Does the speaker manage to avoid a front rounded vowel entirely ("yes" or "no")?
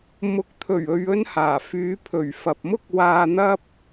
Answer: no